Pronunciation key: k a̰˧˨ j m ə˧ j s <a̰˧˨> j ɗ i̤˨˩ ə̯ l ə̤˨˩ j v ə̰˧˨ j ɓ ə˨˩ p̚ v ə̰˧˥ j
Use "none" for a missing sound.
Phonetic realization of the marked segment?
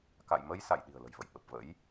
a̰˧˨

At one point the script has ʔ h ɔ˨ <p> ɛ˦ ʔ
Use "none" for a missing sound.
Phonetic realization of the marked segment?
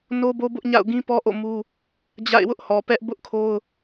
p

